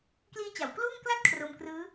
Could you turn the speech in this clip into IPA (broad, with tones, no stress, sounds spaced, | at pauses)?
k l iː˦˥ t͡ɕ a˩˦ w k l uː˥˩ ŋ k l a˥˩ t̚ kʰ r o˧ m k r ɯː˦˥